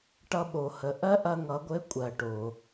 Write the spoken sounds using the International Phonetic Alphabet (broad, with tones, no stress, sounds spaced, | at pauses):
ʈ ʌ˧ ɓ o˩ h ə˩˧ ʔ ɜ˥ ʔ ɐ˧ ŋ ʌ˩˧ ɡʷ ɘ˧˥ kʷʼ ɜ˩ ʈ o˩